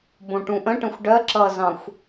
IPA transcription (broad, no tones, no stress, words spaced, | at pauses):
bõʈũʔə̃ʈə̃xʷ ɖɜ ǁʌzɑ̃xʷ